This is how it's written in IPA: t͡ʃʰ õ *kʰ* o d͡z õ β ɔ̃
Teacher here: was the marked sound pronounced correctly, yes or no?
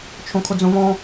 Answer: yes